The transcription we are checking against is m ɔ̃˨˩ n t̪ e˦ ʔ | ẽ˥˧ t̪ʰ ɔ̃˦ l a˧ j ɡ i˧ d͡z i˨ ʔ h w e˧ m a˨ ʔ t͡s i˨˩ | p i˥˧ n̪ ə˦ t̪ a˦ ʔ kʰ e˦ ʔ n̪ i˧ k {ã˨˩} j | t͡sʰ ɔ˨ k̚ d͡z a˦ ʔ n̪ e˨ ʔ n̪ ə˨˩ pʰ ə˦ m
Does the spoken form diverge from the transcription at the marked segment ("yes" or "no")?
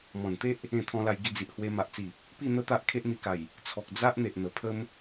yes